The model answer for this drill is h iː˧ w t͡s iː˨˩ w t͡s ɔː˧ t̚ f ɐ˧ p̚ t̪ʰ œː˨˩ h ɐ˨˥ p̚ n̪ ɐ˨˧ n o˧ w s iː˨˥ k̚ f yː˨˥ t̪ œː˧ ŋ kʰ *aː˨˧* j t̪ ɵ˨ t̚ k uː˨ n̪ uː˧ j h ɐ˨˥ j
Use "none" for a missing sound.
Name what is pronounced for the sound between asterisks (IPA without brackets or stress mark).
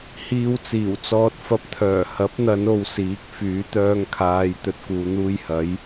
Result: aː˨˧